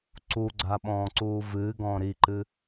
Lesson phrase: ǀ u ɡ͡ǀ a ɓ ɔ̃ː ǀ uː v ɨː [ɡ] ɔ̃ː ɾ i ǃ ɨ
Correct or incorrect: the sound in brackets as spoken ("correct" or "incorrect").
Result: correct